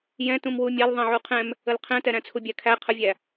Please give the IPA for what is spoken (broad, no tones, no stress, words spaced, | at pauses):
jɛ̃ tũmwumʲal ðˤɛ̃ʕuqʰɛ̃m | əlqʰɛ̃tɛ ɾæ̃t͡sʰubʲækʰæ qʰəvʲæ